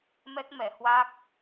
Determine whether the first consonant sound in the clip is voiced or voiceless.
voiced